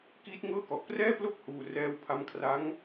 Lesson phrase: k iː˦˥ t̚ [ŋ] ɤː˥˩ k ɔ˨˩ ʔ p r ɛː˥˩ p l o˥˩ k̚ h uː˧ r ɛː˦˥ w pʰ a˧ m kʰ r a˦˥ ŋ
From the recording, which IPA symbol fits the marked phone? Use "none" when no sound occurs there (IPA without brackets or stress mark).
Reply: ŋ